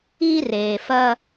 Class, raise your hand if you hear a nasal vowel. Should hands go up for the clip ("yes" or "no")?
no